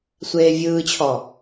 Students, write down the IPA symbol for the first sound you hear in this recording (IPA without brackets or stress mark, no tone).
sʷ